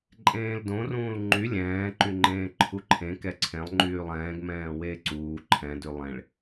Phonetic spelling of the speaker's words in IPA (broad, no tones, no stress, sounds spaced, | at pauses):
ǃʼ ẽː l d õ r ũː l ŋ͡ǃ y lʲ ɛ̃ː ǃ y ŋ͡ǃ ẽː ǃʰ u ǃʰ ẽ k ɛ ǀʰ ẽ lˠ ŋ͡ǃ yː lˠ ɛ̃ː ɡ m ɛ̃ː w eː ǀ uː ǃʰ ɛ̃ d y lˠ ẽ ɭ